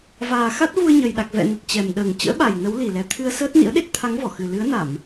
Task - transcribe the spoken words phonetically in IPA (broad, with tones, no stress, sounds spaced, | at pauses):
v aː˨˩ x a˦˥ t̚ v u˧ ə̯ ɲ ə˨˩ j ɗ a˨˩ k̚ v ɛ̰˧˨ n ə˨˩ t̚ t͡ɕ ɛ˨˩ m ɗ əː˨˩ ŋ t͡ɕ ə̰ː˧˥ ɓ a˨˩ j n ə˨˦ w l i˨˩ l ɛ˨˩ t̪ʰ ɨ˧ ə̯ s əː˦˥ t̚ n ḭ˧˥ ə̯ ɗ e˦˥ t̚ t̪ʰ a˨˦ ŋ v ɔ˧˩ x ɨ˨˩ l ɨ˨˦ ə̯ n a˧˩˨ m